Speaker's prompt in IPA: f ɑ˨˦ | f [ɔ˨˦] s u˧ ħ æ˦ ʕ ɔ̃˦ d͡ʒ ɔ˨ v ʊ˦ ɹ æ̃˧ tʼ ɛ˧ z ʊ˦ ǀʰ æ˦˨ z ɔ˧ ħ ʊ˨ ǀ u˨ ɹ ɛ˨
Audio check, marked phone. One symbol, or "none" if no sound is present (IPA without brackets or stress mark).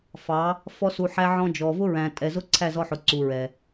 ɔ˦